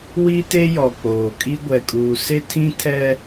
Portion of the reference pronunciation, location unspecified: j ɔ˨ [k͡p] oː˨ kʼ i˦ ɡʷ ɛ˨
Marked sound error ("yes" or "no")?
no